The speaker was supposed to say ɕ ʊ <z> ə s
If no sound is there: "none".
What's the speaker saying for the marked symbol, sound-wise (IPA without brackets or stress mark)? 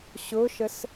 ʃ